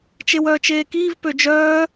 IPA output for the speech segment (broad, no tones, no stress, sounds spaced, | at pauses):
t͡ʃ e w œː t͡ʃ eː k iː v p ø d͡ʒ œː